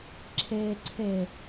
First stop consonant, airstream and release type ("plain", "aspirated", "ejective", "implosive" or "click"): click